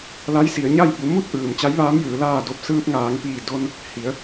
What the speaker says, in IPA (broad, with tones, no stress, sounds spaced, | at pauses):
l a˧˥ j s i˩˧ ə̯ ɲ a˥˨ j b u˩˧ m u˥˨ t̚ ʔ ɯː˩ m t͡ɕ a˧˥ j ʋ aː˧˥ m j ɯː˩˧ l aː˧˩ d o˧ p̚ s ɯː˧ p̚ ŋ aː˩˧ ŋ p iː˧˩ d o˧ n | h i˩˧ ə̯